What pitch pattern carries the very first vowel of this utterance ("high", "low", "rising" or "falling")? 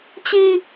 high